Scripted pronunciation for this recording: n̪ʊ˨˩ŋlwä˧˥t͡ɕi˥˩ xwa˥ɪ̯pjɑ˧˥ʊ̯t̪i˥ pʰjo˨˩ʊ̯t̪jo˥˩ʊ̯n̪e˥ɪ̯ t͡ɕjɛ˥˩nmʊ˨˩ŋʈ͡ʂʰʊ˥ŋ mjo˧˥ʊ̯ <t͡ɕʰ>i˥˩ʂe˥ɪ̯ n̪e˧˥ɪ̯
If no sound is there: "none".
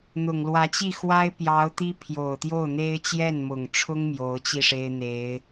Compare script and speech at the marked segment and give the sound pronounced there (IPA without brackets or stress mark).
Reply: t͡ɕ